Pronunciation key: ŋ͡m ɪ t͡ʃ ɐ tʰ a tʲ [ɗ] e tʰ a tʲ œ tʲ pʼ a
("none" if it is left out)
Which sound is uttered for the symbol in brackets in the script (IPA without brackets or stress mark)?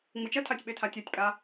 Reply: ɓ